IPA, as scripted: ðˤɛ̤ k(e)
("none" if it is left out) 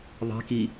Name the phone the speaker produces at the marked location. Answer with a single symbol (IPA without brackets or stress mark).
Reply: i